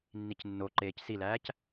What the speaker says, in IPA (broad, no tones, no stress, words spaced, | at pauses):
nːicnːoǃeːc silæːc